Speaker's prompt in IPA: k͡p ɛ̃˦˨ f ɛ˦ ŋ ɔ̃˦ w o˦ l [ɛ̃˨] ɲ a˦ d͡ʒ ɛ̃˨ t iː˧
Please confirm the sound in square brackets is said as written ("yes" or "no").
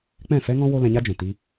no